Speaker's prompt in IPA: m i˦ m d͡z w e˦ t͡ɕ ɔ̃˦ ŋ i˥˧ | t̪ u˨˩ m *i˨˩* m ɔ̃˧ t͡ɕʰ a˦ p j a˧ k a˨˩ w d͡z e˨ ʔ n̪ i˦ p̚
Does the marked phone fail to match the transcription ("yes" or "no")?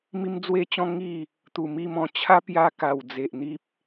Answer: yes